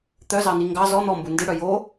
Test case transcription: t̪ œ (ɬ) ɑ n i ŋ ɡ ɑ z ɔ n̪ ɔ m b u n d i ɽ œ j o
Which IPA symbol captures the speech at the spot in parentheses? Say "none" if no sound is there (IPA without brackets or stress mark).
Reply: z